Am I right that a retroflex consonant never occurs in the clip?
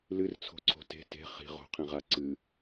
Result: yes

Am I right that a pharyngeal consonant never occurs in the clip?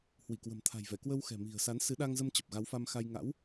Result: yes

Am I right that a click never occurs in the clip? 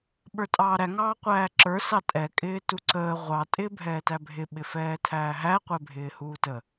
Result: no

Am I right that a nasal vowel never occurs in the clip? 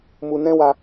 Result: no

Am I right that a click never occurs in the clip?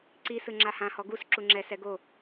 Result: no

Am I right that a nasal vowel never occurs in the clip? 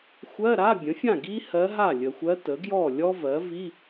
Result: no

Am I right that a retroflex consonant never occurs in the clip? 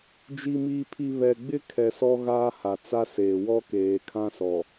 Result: yes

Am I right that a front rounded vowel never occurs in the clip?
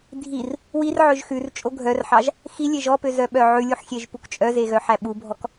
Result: no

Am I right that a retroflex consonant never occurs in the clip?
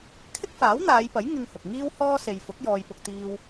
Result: yes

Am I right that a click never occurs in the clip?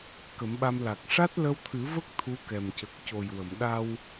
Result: yes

